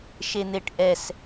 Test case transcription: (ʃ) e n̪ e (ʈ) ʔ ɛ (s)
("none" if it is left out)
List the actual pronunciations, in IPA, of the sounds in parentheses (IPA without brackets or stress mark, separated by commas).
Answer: ʃ, ʈ, s